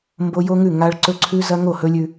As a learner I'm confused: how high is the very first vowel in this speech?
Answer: mid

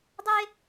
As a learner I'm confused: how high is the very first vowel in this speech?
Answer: mid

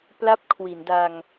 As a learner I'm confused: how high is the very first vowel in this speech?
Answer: low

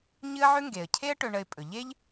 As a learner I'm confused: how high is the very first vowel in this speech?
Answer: high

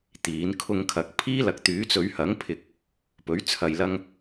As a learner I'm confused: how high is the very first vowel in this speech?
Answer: high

